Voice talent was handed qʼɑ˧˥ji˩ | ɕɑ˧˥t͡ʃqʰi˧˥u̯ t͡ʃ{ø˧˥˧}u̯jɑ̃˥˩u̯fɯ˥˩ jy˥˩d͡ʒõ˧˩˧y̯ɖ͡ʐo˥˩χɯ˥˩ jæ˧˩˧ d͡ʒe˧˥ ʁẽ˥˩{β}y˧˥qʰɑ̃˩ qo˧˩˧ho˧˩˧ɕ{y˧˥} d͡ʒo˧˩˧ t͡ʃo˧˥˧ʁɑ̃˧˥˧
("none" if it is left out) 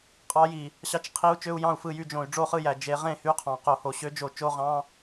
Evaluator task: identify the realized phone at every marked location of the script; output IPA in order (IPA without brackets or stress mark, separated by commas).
ø˧˥˧, h, ø˧˥